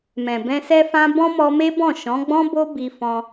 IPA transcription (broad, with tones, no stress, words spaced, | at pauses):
mɛ̃˨bɛ̃˧sɛ˦fã˦ bɔ̃˦mɔ˧me˦bɔ̃˦˨ ʃɔ̃˨˦ɡ͡bɔ̃˦bo˦ bi˧fɔ̃˧